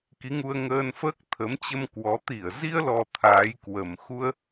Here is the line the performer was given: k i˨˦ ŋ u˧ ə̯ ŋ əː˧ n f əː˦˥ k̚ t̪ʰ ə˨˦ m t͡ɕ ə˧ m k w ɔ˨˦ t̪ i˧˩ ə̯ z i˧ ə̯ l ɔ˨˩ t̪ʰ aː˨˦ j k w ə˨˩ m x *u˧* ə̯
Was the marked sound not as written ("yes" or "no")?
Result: no